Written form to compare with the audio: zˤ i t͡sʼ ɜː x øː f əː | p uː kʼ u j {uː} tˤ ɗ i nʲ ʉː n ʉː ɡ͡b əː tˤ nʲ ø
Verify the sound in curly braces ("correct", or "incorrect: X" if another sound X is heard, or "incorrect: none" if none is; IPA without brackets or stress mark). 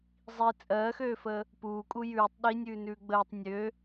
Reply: incorrect: ʉː